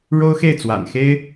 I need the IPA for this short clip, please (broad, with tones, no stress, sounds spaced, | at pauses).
ɻ o˥ ʊ̯ x e˥˩ ɪ̯ t͡s w a̰˨˩ n x e˥ ɪ̯